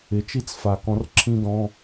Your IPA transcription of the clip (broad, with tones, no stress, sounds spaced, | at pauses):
ɪ˩˧ t͡ʃ i˥ t͡s f a˨˩ k ɔ̃˨˥ r ǁʰ ĩ˥ d ɔ̃˧˥˧